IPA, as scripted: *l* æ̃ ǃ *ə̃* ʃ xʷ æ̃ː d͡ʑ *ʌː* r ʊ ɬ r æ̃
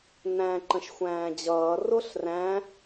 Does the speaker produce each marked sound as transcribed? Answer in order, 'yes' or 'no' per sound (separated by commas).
no, yes, yes